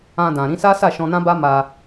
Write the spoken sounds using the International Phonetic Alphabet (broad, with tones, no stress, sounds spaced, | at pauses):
ã˧ d ã˨ ɾ ĩ˧ s a˦ s a˦˨ ʃ ɔ̃˧ n ã˦ b a˦ m a˧